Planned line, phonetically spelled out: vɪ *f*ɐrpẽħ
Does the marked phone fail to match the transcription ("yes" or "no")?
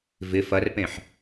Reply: no